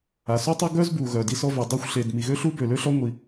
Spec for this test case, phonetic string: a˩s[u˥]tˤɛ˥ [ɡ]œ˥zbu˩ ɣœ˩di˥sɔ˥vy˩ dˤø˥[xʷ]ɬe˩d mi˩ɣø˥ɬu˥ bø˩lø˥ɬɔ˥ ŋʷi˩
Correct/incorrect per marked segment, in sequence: correct, correct, correct

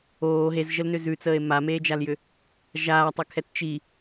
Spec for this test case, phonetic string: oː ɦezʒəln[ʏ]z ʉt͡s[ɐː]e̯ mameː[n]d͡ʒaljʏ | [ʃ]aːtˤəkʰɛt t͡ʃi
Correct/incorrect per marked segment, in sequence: correct, incorrect: əː, incorrect: none, incorrect: ʒ

